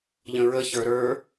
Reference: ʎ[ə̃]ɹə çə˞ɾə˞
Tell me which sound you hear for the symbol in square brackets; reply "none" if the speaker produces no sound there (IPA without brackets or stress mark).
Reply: ə̃